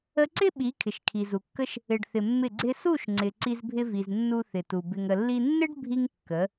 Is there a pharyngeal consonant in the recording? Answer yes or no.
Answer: no